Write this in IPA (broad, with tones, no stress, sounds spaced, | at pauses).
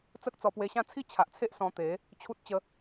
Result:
t͡s ə˦ k̚ t͡s ɔ˧ p w e˧ ɕ ã˥˧ t͡sʰ i˥˧ t͡ɕʰ a˨ ʔ t͡sʰ e˦ ʔ s ɔ̃˧ t̪ e˨˦ | t͡ɕʰ u˦ t̚ t͡ɕ ə˧